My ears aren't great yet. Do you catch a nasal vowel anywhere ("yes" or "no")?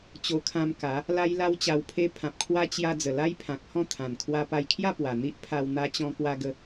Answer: yes